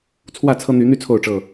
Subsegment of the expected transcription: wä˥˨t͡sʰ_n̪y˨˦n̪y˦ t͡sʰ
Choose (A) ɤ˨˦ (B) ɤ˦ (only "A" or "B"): B